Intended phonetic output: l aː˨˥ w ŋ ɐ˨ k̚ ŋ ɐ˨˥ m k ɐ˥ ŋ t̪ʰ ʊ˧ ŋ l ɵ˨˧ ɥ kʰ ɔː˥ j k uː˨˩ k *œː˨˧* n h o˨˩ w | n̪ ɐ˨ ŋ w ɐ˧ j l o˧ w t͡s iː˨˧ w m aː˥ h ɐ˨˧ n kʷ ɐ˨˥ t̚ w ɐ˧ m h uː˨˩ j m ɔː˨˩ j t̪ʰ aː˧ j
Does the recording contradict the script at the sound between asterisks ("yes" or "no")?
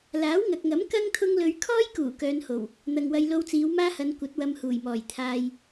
no